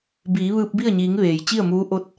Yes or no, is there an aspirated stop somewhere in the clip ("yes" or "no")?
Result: no